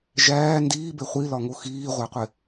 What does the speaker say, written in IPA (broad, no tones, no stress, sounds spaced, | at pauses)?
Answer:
ʒ æː n d iː b e χʷ i l ɒ ŋ o x iː ʁʷ æ qʷ e